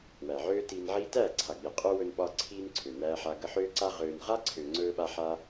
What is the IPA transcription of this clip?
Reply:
w æ˨ ʕ øː˦ t iː˧ n ʕ iː˦ t æː˦˨ ǀʰ a˨ ɡ͡b i˨ qʼ ø˦ w ɵ˧ n ɓ ɒ˧ ǀʰ iː˧ n ǀʰ ø˨ n æː˧ ħ a˧ ɡ ə˧ ħ øː˦ ǀ a˦ ʁ øː˧ n ʁ a˦ ǀʰ ø˨ ŋ͡ǀ ɵː˦ ɓ a˦ ħ a˦

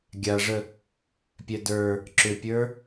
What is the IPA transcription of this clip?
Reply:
ɡʲ a ʐ ə | pʲ ɛ d ə˞ | ǁ ʏ pʲ ə˞

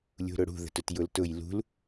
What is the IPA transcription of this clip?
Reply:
lʲ ṳ ɾ ʊ ɽ ṳ ð ə̤ t ʊ t j ʊ l t ʊ j l ṳ l

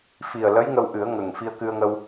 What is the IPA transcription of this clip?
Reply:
f i˨˩ ə̯ l ə˧˥ j ŋ ə˧ w ʔ ɨ˨˩˦ ə̯ ŋ ə˨˩ ŋ f i˧ ə̯ k ɨ˧ ə̯ ŋ ə˧ w

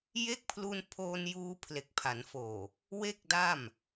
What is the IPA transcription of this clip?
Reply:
j e˦˥ k̚ pʰ l u˧ n pʰ oː˧ n j uː˧ pʰ l e˨˩ k̚ pʰ a˩˦ n f oː˨˩ | w e˥˩ k̚ d a˥˩ m

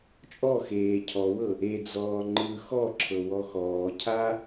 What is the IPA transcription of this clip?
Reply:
t͡ʃʼ ɔ x eː cʰ ɔ w ɤ | e d͡z ɔː ŋ͡ǃ ɯ x ɔ ǁʰ ɤ w ɔ x ɔː cʰ a

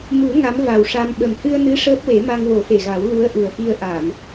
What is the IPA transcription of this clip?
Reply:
m u˨˩˦ ŋ a˧˥ m v a˨˩ w ʂ a˧ m ɓ ə˨˩ m h ɨ˧ ə̯ n ɨ˧˥ ʂ əː˦˥ p̚ w e˨˩˦ m a˧ ŋ w o˨˩˦ f e˨˩ ɣ a˨˩˦ w l u˧˥ ə̯ ʔ u˨˩ ə̯ f i˧ ə̯ ʔ a˨˩˨ m

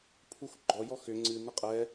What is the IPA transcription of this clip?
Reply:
pʰ u x ɡ͡ǃ ɔ j ɔ x ʏ ŋ͡ǀ ɨ n ɪ qʼ ɛ

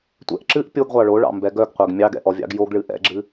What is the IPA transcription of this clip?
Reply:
tʷ ɛ̰ ʔ ǁ ɨ ʔ pʲ o ɡ ʁʷ ɑ ɭ o ɭ ɑ̰ m b ɛ ɡ œ ɡ qʷ ɛ ɡ mʲ ɑ ɡ ɛ̰ ʔ ɔ vʲ ɑ̰ ɡ j o ɡ ɭ ɨ ʔ ɛ̰ ɡ͡ǁ ɨ

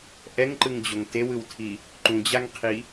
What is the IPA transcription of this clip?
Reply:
ʔ ɛ ŋ ǃ ɯ ŋ d͡ʑ o ŋ t e w ɯ w tʰ i | ǃ ũ d͡ʑ a ŋ qʰ i

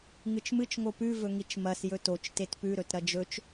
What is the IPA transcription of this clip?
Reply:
ŋ ɨ t͡ʃ m ɨ t͡ʃ ŋ o p ʉ v ɵ ŋ i t͡ʃ m ɐ s j ɵ t o t͡ʃ t e t p ʉ ɾ ɵ t ɾ ɐ d͡ʒ ɵ t͡ʃ

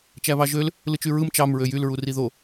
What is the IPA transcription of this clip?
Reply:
t͡ʃ æ β ɑ ʒ ø l | l ɯ t͡ʃ y ɹ ɯ m t͡ʃ ɑ m ɹ ø j y l ɹ u r i ð o

